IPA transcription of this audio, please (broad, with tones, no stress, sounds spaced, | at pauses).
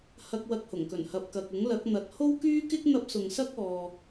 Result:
h ɐ˧ k̚ w ɐ˧ k̚ h ʊ˨˩ ŋ k ɵ˨˩ n h ɐ˨ p̚ k ɐ˨ k̚ ʊ˨˥ ŋ l ɐ˨˥ k̚ n̪ ɐ˨˥ t̚ h o˥ w k yː˥ k ɪ˥ k̚ n̪ ɐ˥ p̚ s ʊ˨ ŋ s ɐ˥ k̚ ɔː˨